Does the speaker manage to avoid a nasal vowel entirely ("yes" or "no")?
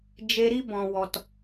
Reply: no